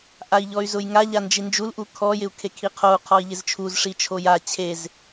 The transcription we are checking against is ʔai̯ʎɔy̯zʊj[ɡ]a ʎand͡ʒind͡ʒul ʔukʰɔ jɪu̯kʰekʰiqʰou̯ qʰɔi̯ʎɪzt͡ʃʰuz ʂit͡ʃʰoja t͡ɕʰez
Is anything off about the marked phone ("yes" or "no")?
yes